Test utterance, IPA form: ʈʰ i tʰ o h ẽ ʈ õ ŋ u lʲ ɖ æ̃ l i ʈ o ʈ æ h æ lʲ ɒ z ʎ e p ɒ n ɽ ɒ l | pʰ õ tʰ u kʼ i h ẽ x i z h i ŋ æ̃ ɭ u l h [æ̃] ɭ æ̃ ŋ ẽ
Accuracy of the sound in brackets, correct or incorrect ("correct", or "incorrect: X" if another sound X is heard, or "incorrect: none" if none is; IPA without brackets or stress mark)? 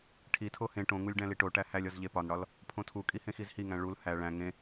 incorrect: æ